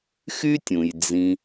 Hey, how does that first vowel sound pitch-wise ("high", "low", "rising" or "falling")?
high